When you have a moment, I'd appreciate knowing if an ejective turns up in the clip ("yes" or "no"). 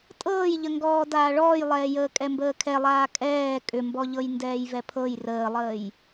yes